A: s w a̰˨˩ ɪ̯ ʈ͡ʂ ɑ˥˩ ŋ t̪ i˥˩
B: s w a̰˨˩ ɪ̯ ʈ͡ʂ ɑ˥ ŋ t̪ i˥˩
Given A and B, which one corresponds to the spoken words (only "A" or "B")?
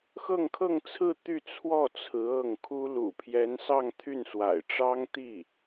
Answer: B